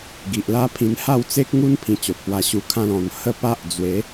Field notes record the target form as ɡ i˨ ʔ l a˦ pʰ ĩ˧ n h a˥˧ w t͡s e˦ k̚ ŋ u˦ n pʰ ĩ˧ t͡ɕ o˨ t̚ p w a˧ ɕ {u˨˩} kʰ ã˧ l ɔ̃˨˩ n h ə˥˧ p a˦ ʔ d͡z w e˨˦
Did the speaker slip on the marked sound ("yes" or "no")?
yes